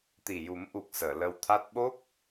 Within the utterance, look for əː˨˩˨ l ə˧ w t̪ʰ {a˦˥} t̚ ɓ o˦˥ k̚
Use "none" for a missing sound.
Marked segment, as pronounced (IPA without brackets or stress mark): a˦˥